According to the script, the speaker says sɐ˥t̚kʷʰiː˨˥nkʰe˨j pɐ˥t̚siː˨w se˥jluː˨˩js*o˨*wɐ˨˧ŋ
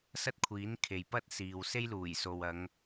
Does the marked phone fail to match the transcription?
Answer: no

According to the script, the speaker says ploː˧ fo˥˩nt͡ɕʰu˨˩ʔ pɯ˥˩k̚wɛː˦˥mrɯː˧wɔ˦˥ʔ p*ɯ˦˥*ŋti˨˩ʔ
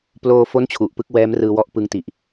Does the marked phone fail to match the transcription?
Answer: no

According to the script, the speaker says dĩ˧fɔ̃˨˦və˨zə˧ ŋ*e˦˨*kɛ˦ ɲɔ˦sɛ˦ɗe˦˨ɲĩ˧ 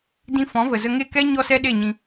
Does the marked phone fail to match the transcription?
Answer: no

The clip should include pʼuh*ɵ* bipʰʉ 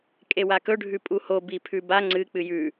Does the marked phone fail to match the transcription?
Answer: yes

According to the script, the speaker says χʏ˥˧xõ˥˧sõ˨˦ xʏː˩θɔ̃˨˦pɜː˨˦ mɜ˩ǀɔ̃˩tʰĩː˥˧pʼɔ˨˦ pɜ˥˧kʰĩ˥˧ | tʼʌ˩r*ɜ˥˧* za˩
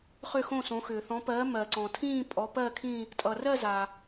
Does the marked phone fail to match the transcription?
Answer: no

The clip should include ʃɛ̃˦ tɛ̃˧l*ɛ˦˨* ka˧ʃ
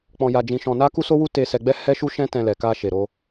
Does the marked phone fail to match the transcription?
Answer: yes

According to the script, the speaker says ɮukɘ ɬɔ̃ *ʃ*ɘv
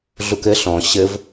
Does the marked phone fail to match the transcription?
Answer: yes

